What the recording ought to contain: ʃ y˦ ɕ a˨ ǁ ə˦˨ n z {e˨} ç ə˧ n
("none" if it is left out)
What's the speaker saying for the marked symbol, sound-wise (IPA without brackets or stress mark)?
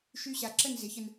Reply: e˨˦